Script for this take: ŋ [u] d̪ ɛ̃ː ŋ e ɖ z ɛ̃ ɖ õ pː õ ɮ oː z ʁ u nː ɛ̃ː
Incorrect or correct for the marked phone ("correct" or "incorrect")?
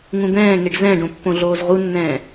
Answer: incorrect